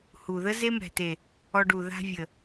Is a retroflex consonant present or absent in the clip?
present